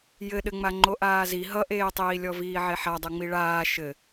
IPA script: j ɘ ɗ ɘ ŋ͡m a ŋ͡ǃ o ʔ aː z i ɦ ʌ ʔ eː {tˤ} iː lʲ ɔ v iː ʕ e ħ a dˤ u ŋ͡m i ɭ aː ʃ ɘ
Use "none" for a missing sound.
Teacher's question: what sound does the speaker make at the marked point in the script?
tˤ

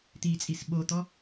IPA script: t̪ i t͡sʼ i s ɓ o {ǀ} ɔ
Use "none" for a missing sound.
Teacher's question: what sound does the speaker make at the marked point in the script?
t̪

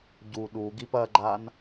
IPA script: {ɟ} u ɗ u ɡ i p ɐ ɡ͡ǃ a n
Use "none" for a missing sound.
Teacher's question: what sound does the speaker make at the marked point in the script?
ɟ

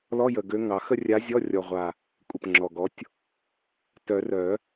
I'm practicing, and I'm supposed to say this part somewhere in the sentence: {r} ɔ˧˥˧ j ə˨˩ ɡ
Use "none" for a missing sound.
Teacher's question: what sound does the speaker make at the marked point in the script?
l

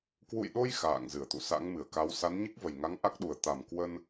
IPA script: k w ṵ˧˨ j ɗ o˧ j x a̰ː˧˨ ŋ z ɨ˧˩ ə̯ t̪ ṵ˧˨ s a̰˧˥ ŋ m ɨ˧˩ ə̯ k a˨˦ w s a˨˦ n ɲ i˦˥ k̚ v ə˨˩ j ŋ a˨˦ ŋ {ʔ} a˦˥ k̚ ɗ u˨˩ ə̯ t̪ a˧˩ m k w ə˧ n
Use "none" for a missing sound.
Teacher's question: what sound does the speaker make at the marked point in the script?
ʔ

